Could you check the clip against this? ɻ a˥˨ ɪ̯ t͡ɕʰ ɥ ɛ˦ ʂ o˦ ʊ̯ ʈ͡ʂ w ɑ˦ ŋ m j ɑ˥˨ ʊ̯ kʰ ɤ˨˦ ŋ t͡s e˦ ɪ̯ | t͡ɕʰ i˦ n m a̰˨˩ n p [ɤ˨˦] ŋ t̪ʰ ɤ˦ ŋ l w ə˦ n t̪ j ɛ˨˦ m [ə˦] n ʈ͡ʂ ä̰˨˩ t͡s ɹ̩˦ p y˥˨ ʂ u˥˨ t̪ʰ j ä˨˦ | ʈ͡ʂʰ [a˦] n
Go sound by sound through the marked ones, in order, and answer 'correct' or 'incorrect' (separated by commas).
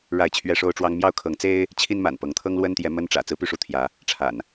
correct, correct, incorrect